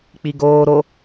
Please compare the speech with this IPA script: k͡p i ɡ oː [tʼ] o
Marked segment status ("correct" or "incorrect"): incorrect